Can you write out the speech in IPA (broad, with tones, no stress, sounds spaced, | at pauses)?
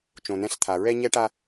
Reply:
t͡ʃ õ˨ n ɛ̃˦ ɬ t̪ʰ a˨ ɹ ɛ˦ ɲ ɛ˦ ʈ a˦